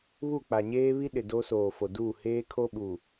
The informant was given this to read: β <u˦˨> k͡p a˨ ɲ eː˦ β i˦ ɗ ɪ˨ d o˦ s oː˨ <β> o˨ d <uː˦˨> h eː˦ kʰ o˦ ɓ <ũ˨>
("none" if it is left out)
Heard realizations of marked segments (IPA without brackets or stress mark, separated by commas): u˦˨, f, uː˦˨, u˨